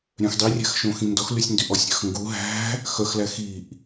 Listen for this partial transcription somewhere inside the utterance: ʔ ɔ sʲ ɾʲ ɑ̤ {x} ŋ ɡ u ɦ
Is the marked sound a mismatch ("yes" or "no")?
no